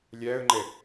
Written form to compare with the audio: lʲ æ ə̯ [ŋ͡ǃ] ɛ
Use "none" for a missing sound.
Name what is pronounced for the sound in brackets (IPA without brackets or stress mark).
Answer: ŋ͡ǃ